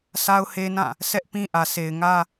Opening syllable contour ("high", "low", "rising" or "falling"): high